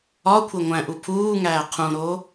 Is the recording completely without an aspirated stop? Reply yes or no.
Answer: no